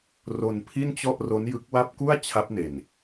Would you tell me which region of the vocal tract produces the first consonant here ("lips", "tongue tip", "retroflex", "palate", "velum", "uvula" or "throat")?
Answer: tongue tip